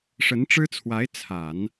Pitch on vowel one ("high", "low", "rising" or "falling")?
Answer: rising